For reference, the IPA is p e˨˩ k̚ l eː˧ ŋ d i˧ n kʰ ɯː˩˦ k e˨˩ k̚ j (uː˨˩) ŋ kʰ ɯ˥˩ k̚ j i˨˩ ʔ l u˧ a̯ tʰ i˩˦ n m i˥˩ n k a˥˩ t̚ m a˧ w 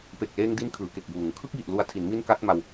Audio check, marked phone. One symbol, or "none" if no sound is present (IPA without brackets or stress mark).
uː˨˩